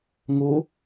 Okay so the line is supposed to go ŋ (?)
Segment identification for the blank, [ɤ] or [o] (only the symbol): o